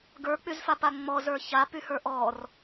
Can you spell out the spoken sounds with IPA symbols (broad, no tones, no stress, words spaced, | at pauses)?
ɡə˞k͡pyzfapa ŋ͡mɔzə˞ çapyhə˞ ʔɔr